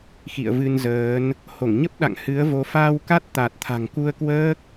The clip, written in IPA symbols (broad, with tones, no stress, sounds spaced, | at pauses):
x ḭ˧˨ ə̯ v ɨ˧ n z əː˨˦ n | h o˧˩ ŋ ɲ ə˦˥ p̚ ɗ a̰˧˨ ŋ h ɨ˨˦ ə̯ v o˨˦ f aː˧ w k a˦˥ t̚ t̪ a˨˩ t̚ t̪ʰ a̤˨˩ ŋ k u˧ ə̯ k w əː˦˥ k̚